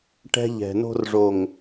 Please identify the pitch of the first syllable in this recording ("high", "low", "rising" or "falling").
high